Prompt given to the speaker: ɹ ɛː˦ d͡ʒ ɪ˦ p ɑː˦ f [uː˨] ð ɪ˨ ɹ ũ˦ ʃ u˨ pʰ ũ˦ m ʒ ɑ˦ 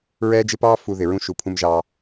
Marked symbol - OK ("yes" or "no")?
no